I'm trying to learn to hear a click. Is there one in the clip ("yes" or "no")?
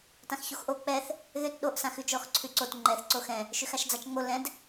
yes